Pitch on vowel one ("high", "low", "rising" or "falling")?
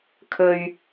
low